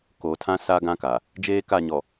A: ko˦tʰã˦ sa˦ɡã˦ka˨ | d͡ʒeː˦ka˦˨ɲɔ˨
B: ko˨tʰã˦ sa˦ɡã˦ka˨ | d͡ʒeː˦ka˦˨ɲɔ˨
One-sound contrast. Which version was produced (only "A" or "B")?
B